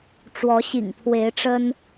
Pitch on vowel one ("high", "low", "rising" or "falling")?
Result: rising